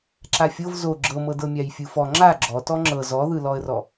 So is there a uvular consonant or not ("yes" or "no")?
no